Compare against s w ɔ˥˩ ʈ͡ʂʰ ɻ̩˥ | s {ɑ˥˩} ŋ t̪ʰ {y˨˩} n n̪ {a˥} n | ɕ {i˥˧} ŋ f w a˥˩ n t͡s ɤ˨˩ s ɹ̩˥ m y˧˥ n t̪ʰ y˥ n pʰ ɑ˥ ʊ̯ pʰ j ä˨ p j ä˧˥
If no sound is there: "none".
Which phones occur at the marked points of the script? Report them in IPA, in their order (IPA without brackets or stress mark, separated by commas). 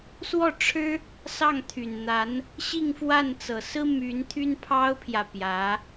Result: ɑ˥˩, y˨˩, a˧˥, i˥˧